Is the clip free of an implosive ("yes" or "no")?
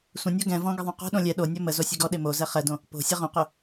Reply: no